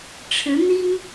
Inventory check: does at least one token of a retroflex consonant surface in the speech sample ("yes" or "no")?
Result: yes